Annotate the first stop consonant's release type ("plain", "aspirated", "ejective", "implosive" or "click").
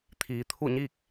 aspirated